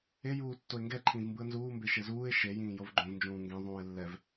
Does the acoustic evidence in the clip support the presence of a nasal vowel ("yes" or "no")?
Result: yes